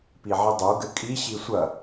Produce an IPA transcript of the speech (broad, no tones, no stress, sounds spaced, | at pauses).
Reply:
p i ʕ i dˤ o ɡ ɘ kʼ i ɕ i sʷ ɐ